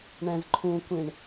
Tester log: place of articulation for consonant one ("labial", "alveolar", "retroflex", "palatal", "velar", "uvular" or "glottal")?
retroflex